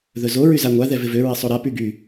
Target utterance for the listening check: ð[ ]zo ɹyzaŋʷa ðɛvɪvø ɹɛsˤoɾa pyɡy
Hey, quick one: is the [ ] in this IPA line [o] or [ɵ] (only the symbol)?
ɵ